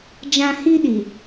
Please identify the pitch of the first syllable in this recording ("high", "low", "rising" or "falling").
high